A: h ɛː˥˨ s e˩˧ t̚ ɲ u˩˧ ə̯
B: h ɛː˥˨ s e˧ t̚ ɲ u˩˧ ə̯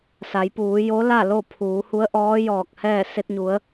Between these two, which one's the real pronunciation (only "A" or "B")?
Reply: B